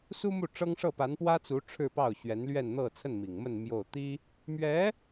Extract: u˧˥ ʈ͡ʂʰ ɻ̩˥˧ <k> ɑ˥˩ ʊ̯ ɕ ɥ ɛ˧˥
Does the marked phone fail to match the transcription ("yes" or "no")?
yes